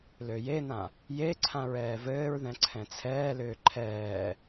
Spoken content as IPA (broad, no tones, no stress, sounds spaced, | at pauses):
l ø j e n ã | j e ǀʰ ã ɹ ɛː v ɘː ɹ ð ɛ̃ ǀʰ ɛ̃ t͡sʰ ɛː l ʏː ǃʰ ɛː